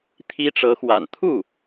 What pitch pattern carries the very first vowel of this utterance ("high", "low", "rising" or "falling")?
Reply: high